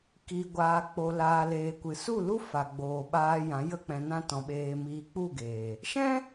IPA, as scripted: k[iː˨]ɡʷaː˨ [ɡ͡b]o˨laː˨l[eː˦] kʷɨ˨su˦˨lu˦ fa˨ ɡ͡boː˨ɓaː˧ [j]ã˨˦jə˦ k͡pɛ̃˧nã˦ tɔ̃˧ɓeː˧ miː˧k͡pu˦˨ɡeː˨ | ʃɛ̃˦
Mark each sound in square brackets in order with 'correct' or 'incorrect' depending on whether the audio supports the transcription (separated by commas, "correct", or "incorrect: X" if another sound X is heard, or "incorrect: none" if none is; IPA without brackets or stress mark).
correct, incorrect: k͡p, incorrect: eː˨, correct